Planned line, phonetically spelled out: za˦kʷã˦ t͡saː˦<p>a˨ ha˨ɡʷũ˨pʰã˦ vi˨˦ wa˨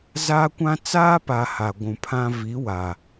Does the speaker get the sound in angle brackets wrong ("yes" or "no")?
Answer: no